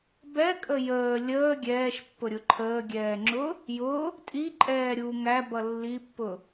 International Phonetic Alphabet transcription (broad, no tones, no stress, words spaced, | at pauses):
bɛkʼə jəː lʲəː ɡʲɛːʃpːʊɾʲʊ ǃʰəːɡʲɛːŋ͡ǁʊ | jʊ | tʼiǃʼɛː ɾʲu ŋæbʌ lːipːʊ